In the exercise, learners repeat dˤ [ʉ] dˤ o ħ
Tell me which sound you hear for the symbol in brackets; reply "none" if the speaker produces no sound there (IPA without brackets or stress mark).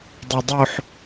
ø